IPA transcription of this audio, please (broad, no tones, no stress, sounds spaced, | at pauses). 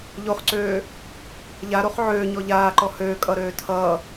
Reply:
ʎ o χ ǀ øː | ʎ a ɾ o χ ʕ øː ɲ ɔ ʎ aː ǃ ɔ h øː kʼ ʌ ɾ øː tʰ ʌː